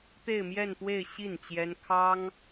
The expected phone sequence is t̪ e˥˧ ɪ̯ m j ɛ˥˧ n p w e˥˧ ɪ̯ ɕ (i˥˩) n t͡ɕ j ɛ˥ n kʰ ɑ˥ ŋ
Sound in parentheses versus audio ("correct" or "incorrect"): correct